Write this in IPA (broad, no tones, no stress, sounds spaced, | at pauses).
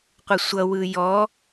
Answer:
qʷ ə sʷ ʌ w ɯ j ɔ